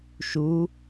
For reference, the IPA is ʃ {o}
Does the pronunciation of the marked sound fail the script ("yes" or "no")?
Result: yes